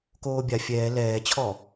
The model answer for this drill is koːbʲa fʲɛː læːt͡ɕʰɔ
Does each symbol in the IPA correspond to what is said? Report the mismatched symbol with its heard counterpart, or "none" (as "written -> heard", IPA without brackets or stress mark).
æː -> ɛː